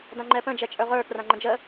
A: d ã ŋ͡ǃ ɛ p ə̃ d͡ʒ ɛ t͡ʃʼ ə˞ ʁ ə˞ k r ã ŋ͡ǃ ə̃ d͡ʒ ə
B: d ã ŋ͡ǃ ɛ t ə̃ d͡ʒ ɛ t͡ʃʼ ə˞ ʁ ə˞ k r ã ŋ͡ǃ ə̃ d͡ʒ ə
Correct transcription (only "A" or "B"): A